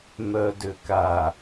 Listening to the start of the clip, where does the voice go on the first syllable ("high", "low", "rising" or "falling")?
low